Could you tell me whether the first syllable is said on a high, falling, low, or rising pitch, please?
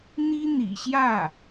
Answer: high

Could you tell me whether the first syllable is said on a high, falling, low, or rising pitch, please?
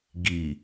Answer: low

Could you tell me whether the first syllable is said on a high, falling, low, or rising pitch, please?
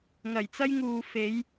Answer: low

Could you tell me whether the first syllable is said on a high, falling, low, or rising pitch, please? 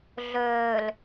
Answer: low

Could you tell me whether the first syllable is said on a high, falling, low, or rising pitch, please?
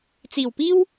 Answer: low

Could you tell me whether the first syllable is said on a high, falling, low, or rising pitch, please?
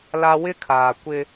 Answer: high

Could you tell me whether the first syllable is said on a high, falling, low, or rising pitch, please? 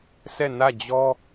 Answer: falling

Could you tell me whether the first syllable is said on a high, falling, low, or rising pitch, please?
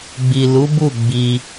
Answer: low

